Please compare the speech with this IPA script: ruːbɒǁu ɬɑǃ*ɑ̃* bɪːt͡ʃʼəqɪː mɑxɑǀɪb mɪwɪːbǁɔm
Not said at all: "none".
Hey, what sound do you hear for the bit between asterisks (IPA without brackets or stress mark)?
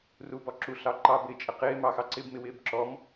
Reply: ɑ